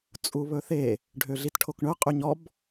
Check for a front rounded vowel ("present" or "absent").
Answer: present